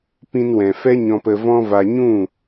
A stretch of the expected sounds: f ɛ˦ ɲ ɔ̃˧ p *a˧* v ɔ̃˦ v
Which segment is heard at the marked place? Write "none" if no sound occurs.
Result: ə˧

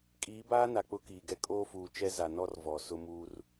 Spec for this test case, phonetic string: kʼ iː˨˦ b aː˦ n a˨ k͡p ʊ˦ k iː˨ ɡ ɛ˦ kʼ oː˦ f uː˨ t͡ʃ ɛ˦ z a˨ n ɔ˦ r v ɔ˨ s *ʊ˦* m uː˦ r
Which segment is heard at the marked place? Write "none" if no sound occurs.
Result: ʊ˦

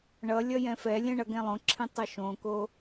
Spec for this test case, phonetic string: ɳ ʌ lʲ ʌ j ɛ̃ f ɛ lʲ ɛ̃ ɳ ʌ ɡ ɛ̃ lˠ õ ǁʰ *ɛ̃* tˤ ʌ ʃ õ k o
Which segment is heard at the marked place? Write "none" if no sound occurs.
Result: ẽ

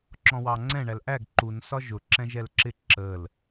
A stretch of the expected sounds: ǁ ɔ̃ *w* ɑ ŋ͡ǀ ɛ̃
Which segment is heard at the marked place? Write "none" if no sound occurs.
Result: w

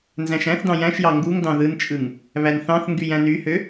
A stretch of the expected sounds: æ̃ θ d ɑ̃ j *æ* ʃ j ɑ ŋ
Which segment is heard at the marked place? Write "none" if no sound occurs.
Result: æ̃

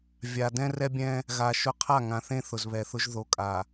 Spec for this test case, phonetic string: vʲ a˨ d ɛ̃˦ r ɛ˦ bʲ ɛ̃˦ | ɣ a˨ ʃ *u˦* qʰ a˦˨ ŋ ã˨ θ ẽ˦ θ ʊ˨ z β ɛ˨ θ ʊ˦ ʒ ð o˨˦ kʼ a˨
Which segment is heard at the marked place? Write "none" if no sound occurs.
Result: ʊ˦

